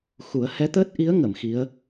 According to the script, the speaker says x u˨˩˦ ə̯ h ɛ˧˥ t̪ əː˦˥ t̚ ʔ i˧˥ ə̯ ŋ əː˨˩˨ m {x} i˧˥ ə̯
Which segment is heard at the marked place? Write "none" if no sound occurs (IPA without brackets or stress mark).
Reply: x